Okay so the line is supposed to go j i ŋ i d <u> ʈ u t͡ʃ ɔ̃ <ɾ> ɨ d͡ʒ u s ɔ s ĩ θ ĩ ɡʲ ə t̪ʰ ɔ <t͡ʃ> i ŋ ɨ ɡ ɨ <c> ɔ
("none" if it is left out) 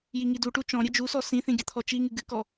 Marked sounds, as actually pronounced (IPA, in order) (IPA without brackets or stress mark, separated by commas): u, ɾʲ, t͡ʃ, k